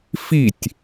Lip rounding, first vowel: unrounded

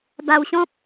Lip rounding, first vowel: unrounded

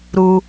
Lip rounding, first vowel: rounded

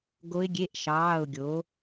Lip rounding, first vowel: rounded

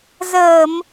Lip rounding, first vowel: unrounded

